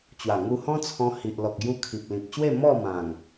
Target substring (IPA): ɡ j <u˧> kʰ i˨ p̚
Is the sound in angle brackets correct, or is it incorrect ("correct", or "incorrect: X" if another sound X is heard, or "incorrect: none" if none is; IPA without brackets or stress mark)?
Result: correct